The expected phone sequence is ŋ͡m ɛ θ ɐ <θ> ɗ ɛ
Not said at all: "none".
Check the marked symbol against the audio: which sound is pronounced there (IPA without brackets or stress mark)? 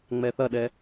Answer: none